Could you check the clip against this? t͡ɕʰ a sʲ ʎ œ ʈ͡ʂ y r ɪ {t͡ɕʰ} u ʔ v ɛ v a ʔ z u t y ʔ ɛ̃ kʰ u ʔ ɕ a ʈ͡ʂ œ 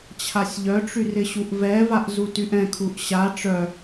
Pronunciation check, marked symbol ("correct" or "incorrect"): incorrect